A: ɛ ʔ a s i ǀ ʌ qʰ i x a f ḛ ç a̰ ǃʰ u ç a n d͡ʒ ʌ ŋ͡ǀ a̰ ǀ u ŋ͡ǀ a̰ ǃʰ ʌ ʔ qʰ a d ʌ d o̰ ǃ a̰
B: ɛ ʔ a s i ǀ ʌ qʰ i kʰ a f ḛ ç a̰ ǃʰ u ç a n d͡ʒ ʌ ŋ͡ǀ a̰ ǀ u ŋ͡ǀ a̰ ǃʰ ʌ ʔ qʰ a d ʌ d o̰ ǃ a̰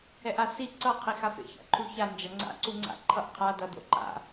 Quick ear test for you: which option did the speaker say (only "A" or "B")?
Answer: A